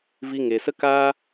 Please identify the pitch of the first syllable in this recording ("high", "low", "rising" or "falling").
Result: high